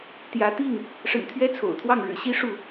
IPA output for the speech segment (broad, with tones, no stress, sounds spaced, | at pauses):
t̪ j ä˨˦ t̪ i˥˨ ŋ | ʂ ə̰˨˩ n t̪ʰ ɥ ɛ˦ t͡sʰ o̰˨˩ ʊ̯ t̪ʰ w ɑ˥˨ ŋ ɻ ɻ̩˨˩ ɕ i˦ ʂ u˥˨